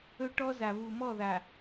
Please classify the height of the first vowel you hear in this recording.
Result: mid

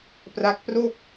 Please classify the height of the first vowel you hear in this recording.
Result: low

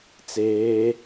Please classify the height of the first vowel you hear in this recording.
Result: mid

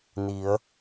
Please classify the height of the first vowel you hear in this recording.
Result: high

